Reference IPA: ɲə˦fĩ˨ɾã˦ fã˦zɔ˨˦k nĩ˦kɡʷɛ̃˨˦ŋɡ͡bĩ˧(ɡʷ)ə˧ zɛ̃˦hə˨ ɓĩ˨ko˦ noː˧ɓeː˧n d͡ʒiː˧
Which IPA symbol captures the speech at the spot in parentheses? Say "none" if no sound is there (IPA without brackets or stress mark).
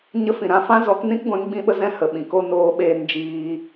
ɓ